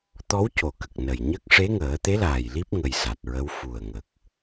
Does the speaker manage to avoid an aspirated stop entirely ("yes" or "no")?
yes